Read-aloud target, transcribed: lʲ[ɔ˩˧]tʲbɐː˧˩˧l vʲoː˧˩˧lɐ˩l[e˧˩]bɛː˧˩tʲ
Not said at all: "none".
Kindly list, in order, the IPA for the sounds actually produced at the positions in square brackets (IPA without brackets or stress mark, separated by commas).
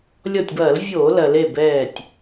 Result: ɔ˧˩, e˧˩